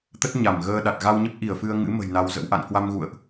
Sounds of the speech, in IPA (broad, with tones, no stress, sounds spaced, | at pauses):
t̪ ə˦˥ t̚ ɲ a˧˩ m ɣ əː˧ ɗ a˨˩ t̚ ɣ a˧ w ɲ ə˦˥ p̚ ʔ i˧˩ ə̯ f ɨ˧ ə̯ ŋ ɨ̰˧˥ m ə̤˨˩ j n a˧ w z ə̰˧˥ w ʔ a̰˧˨ n k w a˧ m ɣ ṵ˧˨ ə̯ ʔ